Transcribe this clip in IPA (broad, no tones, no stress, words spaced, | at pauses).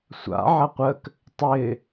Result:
sʷa̰ ʕɐqʷək | tˤɪ